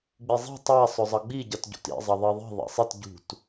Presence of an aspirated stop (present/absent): absent